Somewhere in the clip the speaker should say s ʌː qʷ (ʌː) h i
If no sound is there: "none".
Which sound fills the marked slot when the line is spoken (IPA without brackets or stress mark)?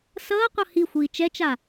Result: ʌ